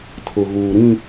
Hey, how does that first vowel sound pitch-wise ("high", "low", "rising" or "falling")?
low